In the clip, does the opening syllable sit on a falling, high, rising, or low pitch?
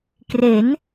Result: rising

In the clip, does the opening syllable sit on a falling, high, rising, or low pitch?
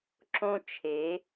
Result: high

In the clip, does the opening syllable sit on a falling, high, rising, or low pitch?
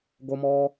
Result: high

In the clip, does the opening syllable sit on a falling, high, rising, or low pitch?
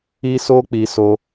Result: high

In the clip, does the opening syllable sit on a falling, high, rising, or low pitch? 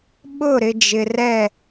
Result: falling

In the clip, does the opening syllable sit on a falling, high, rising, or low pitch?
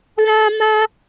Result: high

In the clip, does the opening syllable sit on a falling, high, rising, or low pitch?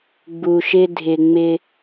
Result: low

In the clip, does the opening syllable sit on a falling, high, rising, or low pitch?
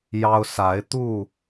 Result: high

